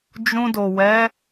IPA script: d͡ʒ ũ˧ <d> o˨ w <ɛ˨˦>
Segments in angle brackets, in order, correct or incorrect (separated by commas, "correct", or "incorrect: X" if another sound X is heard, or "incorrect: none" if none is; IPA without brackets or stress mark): correct, correct